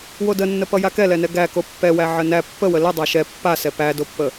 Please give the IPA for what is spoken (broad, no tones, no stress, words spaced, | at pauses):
wodənːəpʌ jakɛlɛnɛ ɡæko pːɛwæ ʕənæ pːəwə lə dˤæʃɛ pːa sɛpædopːə